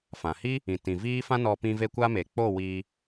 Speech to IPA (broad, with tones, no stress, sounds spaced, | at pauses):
f ã˨ h i˦ | ĩ˨ t ĩ˨ v iː˦ f ã˦ n ɔ˧ p ĩ˧ v e˧ kʷ a˦ m e˨ k͡p o˦˨ w iː˧